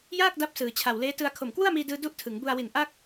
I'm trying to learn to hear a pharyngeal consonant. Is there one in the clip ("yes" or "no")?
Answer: no